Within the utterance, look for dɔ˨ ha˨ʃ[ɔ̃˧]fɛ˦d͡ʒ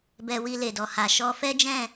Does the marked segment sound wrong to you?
yes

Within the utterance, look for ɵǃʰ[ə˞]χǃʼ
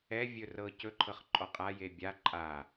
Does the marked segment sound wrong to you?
yes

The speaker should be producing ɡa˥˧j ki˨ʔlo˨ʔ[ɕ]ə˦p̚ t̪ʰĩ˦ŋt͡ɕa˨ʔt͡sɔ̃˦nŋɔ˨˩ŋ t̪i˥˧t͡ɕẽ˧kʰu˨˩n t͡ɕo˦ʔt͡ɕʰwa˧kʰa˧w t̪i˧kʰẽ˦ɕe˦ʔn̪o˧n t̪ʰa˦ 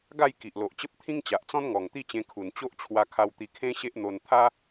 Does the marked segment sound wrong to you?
yes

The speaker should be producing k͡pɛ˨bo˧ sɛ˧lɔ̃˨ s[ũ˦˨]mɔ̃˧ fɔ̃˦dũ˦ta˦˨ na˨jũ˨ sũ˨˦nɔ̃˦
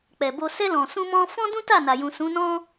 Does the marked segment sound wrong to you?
yes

